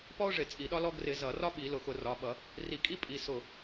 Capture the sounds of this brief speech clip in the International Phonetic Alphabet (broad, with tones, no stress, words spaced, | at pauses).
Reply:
pɔ˥ʊ̯ʐɪ˧˩˧ t͡sʼi˧˩˧ɗɒ˥lɔ˥ ɡrɪ˧˩˧ zʌ˧˩˧rɒ˥ɓi˧˩˧ lʊ˧˩xʊ˧˩˧rɒ˩˧˩ɓʌ˧˩˧ | ri˧˩kʼi˥pʼi˩˧˩ sʊ˧˩